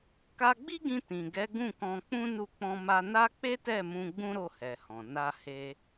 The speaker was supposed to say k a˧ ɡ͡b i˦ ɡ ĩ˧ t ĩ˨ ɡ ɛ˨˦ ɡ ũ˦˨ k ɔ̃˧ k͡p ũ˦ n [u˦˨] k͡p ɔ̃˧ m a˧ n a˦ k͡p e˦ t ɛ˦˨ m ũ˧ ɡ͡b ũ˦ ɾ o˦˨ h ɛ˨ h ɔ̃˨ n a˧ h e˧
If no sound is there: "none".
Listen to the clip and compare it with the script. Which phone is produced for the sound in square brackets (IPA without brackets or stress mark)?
u˦˨